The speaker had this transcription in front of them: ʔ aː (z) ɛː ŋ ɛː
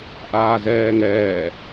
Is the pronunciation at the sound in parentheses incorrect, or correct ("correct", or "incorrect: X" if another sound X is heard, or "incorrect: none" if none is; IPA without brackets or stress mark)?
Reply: correct